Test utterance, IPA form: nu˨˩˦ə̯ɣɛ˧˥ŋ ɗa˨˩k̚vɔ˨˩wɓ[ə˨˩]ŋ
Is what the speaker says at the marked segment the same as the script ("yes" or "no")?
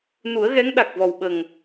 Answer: yes